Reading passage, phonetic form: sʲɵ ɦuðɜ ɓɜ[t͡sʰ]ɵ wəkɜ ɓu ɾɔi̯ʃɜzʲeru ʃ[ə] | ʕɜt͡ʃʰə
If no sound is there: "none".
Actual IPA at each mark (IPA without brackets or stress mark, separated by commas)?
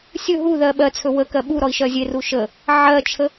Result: t͡sʰ, ə